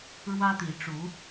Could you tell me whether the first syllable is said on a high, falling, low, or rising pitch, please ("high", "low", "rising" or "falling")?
high